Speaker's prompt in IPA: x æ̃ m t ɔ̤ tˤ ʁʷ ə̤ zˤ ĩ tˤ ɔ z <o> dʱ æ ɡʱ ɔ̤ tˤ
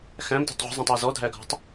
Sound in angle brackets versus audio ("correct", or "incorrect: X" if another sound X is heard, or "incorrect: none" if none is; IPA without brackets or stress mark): incorrect: ɔ